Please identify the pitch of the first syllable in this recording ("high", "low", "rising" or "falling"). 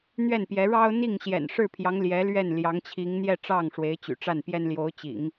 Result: falling